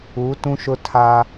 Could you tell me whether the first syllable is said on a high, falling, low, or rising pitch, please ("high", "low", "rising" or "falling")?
rising